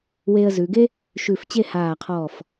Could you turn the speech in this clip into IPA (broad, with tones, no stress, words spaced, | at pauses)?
weː˧ə̯zʉ˩˧ɡe˥ | ʃʉ˧˩f t͡ɕe˥˧haː˧˩qʰɔː˧˩f